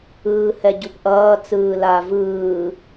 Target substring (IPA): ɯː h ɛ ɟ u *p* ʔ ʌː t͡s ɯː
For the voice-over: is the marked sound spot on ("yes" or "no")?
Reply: yes